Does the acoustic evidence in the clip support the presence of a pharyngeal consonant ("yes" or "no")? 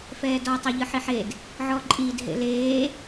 yes